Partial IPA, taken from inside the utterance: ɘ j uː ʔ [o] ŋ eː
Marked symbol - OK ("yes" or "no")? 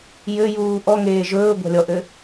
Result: no